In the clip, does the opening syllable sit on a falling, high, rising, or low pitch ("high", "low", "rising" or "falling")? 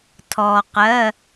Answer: low